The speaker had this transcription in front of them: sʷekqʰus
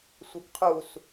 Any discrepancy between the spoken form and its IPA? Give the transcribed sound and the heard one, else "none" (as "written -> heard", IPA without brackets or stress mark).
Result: none